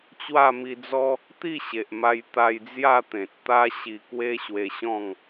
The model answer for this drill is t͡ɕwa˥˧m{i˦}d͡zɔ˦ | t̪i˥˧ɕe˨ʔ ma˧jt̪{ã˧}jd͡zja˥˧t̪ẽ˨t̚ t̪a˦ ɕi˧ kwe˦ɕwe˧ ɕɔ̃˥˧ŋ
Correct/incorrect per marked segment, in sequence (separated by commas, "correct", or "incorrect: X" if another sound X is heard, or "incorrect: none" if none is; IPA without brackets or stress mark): incorrect: i˧, incorrect: a˧